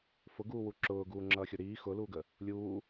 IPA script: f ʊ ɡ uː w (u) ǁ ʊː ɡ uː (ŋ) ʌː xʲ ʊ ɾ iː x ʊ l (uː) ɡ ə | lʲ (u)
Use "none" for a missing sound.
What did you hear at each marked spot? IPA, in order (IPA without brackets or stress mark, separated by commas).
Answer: u, ŋ͡ǁ, uː, uː